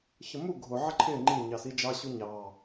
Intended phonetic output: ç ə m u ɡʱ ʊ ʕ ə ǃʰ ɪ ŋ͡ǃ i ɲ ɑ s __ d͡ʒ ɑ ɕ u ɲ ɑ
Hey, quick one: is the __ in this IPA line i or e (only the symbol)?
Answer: i